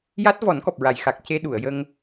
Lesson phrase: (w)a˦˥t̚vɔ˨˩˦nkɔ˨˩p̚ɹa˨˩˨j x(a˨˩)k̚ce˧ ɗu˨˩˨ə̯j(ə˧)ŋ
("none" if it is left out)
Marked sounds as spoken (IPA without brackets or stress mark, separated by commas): j, a˨˩, ə˧